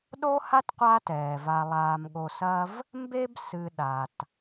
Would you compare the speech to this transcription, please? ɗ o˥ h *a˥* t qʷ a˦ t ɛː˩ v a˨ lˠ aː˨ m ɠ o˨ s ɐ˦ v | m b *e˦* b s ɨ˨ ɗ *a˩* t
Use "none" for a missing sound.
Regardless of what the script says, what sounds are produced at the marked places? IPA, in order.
a˥, e˦, a˩

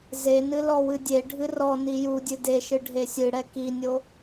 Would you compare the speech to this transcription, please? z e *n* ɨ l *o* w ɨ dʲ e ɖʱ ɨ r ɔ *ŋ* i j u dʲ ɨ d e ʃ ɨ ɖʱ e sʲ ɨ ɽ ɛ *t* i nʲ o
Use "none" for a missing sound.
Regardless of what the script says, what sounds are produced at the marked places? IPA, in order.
n, ɔ, n, k

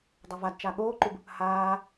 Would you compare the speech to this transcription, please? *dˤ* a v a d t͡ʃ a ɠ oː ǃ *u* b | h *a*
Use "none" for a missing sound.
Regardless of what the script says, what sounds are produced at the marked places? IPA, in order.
dˤ, u, aː

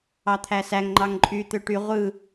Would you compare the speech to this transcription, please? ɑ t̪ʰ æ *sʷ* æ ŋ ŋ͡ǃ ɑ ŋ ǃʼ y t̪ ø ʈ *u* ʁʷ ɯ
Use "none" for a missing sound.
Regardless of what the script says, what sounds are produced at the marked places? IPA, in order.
s, y

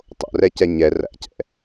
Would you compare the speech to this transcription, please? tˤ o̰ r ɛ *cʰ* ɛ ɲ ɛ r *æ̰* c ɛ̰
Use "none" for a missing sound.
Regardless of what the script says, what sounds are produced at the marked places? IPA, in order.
c, æ̰

